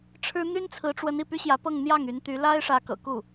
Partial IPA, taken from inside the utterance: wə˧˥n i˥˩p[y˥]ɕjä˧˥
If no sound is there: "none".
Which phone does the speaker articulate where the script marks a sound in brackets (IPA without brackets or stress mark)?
y˥